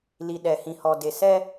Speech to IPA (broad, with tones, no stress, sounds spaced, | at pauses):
l i˨ ɗ ɛ˨ h ĩ˨ h ɔ˨ d e˨ s ɛ˦